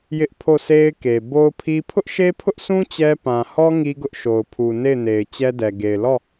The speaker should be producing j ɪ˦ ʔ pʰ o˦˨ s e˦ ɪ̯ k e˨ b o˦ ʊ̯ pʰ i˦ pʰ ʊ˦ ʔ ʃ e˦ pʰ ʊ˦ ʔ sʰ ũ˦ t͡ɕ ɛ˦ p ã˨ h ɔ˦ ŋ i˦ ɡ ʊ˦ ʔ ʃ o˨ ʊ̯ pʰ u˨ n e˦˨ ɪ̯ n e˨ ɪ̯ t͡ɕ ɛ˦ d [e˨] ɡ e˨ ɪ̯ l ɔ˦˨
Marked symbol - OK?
no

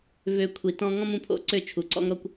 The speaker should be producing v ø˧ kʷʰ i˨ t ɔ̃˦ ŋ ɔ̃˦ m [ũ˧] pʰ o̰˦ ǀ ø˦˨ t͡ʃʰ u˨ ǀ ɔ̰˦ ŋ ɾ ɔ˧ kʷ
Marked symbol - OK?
yes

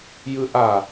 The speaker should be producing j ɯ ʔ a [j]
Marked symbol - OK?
no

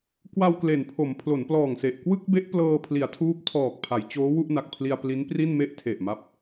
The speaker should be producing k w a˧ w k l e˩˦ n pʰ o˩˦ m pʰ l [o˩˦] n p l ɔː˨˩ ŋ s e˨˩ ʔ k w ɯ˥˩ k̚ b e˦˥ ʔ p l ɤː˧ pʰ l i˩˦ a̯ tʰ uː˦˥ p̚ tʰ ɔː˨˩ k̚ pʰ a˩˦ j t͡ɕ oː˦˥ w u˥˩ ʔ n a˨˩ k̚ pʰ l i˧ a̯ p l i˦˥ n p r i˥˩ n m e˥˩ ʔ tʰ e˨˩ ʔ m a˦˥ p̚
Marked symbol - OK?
yes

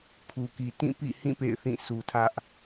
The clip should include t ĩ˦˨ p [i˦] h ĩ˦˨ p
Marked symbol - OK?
no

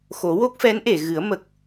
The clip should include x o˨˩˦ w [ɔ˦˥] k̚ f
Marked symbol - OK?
no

